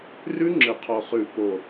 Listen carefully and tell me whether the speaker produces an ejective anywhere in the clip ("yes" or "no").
no